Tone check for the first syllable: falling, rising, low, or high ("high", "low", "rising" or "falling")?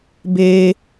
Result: high